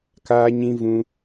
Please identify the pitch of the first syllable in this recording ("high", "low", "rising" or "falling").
high